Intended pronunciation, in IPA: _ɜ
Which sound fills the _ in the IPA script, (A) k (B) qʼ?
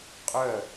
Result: B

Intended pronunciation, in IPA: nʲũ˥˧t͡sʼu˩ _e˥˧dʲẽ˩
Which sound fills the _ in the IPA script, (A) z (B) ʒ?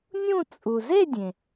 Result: A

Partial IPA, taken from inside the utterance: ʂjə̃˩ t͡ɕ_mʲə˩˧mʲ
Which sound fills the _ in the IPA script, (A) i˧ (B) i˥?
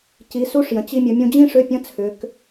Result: A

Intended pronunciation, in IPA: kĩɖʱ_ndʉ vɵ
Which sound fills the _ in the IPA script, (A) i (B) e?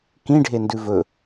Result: B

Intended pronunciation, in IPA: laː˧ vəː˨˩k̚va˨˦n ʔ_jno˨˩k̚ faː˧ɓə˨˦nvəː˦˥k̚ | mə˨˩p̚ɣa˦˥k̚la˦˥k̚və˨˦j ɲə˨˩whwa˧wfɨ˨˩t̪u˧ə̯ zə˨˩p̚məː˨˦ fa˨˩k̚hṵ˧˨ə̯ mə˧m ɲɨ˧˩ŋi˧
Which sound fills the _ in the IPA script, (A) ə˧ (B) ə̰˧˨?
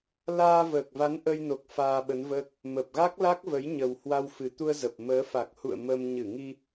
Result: A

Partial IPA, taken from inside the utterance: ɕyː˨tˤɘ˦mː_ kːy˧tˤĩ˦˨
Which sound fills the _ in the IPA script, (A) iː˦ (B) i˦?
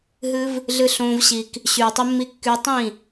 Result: B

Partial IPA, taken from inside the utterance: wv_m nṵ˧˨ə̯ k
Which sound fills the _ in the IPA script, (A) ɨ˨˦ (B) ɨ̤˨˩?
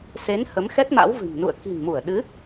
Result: B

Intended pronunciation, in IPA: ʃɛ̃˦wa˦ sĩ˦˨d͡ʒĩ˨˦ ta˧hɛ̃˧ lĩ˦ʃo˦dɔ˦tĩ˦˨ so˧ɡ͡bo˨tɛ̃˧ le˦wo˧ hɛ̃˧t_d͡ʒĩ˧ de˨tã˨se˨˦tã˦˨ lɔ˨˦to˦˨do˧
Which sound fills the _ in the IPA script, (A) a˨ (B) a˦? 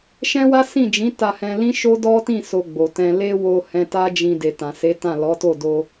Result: B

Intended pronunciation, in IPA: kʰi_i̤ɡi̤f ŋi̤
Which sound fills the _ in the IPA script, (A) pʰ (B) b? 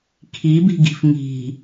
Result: B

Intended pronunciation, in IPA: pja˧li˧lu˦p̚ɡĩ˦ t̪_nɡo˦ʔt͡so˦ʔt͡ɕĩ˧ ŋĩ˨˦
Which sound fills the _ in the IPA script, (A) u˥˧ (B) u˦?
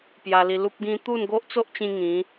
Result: A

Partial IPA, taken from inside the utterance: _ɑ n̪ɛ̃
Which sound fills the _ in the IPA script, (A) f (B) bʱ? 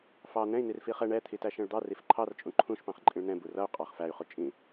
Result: A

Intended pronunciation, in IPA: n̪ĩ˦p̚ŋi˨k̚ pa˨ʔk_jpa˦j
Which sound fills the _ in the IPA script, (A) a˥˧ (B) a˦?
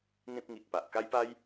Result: B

